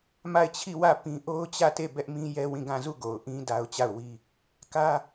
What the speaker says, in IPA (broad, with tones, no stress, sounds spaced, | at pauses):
m a˦˨ ɪ̯ t͡ɕʰ i˦˨ w ä˦˨ p ĩ˦ ʔ o˦ ʊ̯ t͡ɕ ä˦˨ t e˦˨ b ɛ˦ ʔ m ĩ˦ j ɛ˦ w ĩ˦˨ ɡ ã˦˨ z u˦˨ ɡ o˨ ʊ̯ ʔ ĩ˦ d a˦ ʊ̯ t͡ɕ a˦˨ ʊ̯ w i˦ | k ä˦